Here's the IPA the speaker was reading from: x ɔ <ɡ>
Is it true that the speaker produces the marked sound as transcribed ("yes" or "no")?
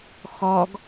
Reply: yes